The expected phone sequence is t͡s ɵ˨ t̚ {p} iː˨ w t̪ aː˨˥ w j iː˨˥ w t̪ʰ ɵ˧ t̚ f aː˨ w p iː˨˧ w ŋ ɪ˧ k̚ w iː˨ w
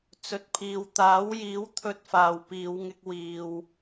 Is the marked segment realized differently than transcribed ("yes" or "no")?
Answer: yes